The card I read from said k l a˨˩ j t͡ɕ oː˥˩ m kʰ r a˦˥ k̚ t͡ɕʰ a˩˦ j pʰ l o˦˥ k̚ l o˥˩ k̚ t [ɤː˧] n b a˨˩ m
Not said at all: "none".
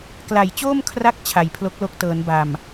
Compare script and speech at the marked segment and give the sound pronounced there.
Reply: ɤː˩˦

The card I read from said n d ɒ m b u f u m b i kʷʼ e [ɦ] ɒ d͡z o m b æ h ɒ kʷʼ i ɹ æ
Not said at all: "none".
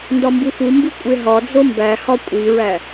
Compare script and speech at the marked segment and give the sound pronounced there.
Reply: ɦ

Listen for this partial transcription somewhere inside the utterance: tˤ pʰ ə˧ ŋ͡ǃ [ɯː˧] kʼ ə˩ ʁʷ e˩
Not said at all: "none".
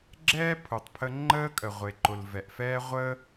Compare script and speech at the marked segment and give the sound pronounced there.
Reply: əː˧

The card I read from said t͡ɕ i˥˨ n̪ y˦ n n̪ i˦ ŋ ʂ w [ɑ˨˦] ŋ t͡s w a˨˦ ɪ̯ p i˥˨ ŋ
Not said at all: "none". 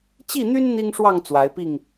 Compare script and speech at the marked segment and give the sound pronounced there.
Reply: ɑ˥˨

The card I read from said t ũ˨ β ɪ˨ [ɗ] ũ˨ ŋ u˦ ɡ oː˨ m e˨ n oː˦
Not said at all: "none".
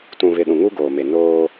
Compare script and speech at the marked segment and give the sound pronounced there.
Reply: ɗ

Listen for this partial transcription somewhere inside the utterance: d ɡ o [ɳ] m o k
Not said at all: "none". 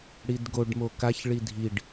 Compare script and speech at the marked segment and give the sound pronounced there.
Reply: ɖ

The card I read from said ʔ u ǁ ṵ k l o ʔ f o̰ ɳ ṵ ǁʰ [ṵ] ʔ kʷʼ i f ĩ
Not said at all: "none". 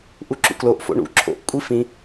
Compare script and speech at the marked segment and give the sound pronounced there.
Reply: o̰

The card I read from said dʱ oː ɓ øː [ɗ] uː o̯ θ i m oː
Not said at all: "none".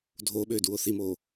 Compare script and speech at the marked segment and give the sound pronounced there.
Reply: d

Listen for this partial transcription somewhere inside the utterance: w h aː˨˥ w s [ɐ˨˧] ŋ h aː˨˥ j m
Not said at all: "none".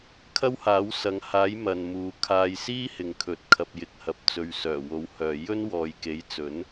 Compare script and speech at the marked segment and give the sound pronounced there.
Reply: ɐ˨˧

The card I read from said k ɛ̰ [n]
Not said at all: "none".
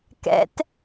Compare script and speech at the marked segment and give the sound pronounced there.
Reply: t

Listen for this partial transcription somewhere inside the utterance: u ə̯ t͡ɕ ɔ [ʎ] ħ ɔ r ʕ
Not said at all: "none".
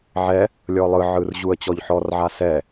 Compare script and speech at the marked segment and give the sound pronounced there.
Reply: ʎ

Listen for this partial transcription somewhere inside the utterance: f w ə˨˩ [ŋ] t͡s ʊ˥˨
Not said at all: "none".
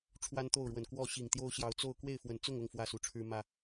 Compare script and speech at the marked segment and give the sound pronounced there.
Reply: n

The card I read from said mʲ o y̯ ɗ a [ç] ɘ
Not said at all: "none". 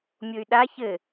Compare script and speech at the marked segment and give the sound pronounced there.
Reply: ç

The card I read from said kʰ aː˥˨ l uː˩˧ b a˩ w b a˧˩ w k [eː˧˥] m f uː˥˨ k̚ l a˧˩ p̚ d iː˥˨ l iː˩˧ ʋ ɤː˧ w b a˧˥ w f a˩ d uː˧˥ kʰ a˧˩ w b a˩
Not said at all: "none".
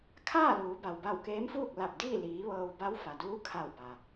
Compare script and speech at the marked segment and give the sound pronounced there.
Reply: eː˧˥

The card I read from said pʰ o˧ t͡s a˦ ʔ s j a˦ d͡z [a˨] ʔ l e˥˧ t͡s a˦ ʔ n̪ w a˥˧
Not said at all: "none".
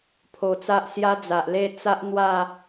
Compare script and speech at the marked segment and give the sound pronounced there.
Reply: a˨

